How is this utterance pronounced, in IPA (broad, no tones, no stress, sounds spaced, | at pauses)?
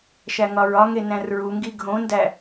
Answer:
ʃ æ ŋ ɒ ɹ ɒ ŋ e n æ̃ r ɹ u ŋ ɡ i ɡʱ õ n d æ